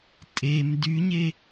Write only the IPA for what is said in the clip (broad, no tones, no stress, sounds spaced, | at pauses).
tʼ e m d y ɲ e